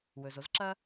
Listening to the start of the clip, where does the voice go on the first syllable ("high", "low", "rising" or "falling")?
low